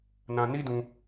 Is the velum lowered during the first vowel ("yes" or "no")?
yes